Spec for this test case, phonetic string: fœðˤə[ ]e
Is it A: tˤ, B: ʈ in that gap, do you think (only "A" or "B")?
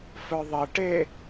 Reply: B